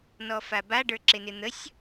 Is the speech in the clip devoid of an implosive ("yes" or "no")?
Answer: yes